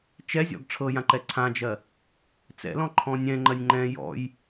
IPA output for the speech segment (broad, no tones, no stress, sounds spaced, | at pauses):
t͡ʃ ɛ zʲ ɔ̰ ɡ ʈ͡ʂʰ ɤ j ã ǃ ɛ ǀʰ ã d͡ʒ ɜ | t͡s ɛ̰ l ɔ̃ ǃʰ ɔ̃ nʲ ɛ̃ ŋ͡ǃ ɜ nʲ ŋ͡ǃ ɛ̃ j ɔ̰ j